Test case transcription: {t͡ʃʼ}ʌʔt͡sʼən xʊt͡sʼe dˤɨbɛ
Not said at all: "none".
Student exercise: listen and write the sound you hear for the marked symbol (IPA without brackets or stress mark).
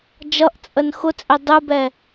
d͡ʒ